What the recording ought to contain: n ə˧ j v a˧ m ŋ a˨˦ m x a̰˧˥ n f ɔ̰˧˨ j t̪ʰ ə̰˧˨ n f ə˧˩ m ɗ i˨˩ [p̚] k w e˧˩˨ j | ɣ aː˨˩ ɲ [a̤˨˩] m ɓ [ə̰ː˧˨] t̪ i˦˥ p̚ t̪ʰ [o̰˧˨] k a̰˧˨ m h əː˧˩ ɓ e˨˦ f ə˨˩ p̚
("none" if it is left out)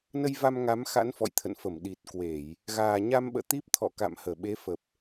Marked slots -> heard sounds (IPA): t̚, a˧, ə̰ː˧˨, ɔ̰˧˨

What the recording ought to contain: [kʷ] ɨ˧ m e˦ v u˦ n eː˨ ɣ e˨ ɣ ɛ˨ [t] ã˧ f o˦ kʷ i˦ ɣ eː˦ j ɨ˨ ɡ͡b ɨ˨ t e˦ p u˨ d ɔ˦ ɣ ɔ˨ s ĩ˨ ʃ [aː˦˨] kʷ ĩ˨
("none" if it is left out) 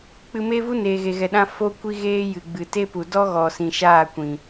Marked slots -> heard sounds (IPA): k͡p, ɗ, aː˦˨

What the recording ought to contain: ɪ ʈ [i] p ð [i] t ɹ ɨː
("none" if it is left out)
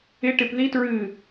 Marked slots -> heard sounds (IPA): ɪ, i

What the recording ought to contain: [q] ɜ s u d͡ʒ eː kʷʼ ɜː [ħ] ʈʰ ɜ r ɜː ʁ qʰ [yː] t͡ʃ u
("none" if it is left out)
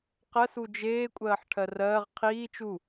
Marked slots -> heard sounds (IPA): q, ħ, iː

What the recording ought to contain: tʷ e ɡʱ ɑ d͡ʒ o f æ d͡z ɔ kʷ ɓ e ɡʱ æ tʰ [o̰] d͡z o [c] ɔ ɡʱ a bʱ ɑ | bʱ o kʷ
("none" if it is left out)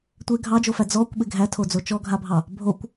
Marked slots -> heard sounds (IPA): o, t͡ʃ

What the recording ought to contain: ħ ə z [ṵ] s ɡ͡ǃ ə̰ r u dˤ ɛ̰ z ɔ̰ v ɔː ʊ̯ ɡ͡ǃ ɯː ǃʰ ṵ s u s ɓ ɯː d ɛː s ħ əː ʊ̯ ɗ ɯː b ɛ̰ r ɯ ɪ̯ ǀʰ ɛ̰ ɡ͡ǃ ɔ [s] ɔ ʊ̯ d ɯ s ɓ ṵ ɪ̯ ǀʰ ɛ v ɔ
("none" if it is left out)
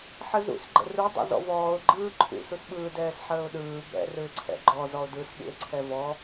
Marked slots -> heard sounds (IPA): ṵ, z

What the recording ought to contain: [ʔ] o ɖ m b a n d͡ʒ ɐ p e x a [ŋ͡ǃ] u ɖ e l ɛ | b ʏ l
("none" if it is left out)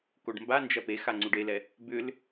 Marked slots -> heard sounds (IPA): k, ŋ͡ǀ

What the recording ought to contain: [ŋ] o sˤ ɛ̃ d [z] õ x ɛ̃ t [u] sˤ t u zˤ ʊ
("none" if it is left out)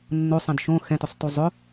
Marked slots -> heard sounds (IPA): nː, ʃ, ʊ

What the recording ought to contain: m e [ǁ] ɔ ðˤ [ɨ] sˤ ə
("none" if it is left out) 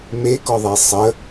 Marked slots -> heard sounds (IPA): k, e

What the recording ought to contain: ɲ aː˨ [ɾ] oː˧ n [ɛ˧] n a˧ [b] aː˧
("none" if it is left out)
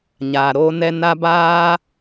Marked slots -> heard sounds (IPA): ɾ, ɛ˧, b

